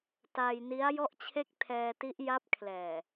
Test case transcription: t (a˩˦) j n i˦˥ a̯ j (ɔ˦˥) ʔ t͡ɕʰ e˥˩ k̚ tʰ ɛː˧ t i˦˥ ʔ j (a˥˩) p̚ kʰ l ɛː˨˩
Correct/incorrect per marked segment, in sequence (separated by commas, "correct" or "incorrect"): incorrect, incorrect, incorrect